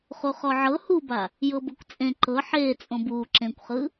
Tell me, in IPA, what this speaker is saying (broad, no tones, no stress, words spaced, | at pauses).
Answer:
χuχɔʕɤ huba | jɤbɤkʷt͡sʼẽ ǃɤ ħeː t͡sʼõbuː ǁẽkʷχɯ